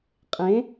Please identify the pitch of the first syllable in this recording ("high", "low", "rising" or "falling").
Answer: rising